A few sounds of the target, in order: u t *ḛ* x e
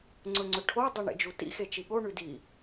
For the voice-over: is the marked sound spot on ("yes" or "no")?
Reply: no